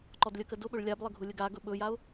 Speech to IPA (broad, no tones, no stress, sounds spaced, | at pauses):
ǃ ɔ d lʲ ə k ə d ʊ ɓ ɵ ɭ lʲ a b lˠ ə ɡʱ ʊ lʲ ə ɡ a ɡ ɵ ɓ ɵ j a ʊ̯